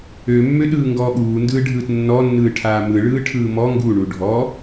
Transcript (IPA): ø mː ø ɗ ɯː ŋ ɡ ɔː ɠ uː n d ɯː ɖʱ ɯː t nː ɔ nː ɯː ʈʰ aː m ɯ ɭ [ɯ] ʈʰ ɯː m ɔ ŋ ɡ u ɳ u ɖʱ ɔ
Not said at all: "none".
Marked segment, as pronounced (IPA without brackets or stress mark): ɯː